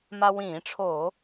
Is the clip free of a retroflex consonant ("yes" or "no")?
no